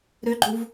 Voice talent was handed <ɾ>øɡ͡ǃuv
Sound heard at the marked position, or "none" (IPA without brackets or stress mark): ɾ